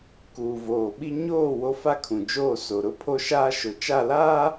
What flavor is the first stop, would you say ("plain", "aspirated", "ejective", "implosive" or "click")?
plain